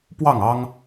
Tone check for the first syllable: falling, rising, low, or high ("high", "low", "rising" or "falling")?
falling